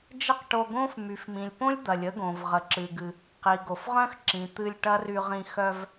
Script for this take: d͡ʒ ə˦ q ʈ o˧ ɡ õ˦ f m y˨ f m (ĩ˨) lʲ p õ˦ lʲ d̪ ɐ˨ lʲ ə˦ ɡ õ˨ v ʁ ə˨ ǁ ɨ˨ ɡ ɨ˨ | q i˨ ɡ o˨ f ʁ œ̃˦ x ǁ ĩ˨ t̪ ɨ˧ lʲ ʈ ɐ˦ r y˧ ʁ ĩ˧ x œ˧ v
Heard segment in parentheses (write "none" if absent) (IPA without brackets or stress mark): ĩ˨